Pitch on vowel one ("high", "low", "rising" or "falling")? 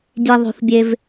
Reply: low